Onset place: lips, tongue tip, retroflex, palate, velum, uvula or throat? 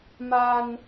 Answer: lips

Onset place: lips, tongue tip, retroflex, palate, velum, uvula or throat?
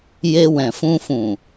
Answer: palate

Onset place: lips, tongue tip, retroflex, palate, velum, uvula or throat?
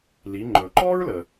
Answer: tongue tip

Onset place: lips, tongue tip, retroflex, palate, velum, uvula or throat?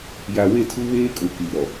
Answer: palate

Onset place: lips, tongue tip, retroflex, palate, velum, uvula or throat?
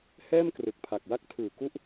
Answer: throat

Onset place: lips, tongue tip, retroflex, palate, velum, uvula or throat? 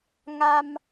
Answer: velum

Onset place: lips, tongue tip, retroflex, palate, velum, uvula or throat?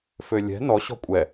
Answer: lips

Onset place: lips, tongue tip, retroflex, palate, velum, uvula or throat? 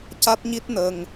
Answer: palate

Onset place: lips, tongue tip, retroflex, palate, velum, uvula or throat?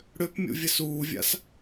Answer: retroflex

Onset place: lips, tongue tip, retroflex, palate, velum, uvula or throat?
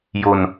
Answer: palate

